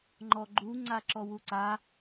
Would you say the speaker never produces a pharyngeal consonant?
yes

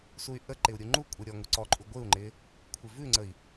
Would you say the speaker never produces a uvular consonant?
yes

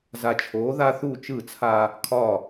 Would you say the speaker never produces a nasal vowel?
yes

